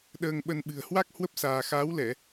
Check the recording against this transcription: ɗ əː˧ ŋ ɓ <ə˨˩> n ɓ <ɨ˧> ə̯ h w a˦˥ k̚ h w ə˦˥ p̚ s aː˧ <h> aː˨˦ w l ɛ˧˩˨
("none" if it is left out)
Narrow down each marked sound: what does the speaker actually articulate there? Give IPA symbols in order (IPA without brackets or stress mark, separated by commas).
ə˧, ɨ̤˨˩, x